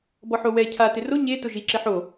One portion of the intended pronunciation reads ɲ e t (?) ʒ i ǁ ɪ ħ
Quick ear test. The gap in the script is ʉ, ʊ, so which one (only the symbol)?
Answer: ʊ